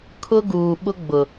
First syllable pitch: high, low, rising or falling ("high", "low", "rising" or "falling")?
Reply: high